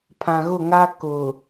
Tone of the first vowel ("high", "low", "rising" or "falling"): low